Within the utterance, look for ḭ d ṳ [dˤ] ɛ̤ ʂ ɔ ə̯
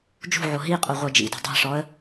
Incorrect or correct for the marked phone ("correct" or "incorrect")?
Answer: correct